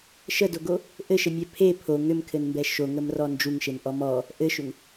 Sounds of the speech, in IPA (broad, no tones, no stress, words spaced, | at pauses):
ʃədoɡo | ʔɘʃɘmʲɛ pʰe pʰo ŋʏmkʰɘnmbɛ ʃoŋəmrɔ nd͡ʒuŋʃenʔɔ mɔ | ʔɘʃʏŋ